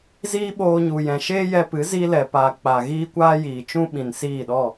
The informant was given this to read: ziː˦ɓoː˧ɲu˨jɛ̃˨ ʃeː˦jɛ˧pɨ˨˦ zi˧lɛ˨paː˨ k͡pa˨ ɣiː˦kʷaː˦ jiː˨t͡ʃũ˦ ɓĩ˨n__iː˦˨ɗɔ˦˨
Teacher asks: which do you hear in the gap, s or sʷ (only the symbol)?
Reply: s